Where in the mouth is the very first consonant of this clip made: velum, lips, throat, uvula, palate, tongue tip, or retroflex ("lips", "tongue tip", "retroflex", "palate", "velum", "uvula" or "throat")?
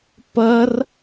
lips